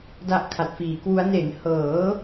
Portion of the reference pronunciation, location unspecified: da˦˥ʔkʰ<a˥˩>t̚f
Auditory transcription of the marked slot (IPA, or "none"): a˨˩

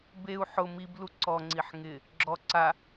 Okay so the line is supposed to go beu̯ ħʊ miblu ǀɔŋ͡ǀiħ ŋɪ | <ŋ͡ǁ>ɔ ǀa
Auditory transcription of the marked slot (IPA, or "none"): ɡ͡ǁ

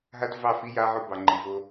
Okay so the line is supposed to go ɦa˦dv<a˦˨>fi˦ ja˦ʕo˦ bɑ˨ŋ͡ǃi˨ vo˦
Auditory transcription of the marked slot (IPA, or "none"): ɑ˦˨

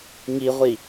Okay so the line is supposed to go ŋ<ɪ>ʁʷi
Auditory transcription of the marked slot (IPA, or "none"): i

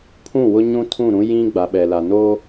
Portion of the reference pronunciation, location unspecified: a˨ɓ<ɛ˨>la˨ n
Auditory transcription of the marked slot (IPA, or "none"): ɛ˨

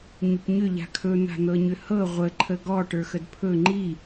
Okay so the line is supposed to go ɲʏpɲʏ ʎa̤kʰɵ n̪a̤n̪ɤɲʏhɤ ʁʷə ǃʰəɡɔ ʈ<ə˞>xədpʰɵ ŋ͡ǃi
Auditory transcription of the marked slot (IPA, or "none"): ə˞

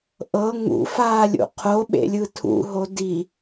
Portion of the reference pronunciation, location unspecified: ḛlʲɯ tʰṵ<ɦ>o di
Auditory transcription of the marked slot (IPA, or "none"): ɦ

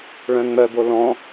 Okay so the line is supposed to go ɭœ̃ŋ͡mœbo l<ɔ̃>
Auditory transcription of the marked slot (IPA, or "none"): ɔ̃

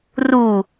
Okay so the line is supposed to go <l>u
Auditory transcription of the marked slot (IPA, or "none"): r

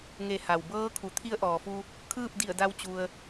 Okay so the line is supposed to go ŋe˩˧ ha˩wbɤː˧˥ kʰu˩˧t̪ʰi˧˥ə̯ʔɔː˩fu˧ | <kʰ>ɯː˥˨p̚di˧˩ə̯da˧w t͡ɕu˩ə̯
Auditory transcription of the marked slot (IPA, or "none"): kʰ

